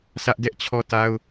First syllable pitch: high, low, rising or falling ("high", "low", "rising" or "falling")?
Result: high